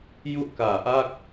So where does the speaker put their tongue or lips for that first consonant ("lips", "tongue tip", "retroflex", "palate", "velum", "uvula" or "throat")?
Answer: palate